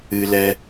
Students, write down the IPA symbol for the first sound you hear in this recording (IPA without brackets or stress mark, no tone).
ɨ